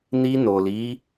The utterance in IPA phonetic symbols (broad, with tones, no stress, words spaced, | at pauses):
ni˧ no˨li˨˦